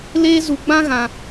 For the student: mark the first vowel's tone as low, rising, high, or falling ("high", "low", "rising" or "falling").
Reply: high